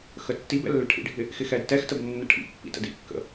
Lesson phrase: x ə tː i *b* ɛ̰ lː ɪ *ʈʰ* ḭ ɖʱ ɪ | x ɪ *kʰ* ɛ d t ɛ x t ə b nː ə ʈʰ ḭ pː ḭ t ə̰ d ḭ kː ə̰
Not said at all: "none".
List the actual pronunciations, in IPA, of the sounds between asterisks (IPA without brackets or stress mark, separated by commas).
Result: b, ʈʰ, x